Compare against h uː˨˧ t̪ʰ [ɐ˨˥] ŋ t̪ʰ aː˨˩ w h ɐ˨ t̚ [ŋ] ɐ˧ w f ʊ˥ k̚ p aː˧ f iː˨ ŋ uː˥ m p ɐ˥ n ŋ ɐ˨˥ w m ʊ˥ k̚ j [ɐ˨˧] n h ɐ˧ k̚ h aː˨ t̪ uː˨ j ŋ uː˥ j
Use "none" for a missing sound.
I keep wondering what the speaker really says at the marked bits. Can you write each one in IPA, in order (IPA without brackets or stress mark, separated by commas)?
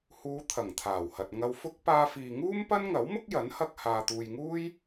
ɐ˨˩, ŋ, ɐ˨˥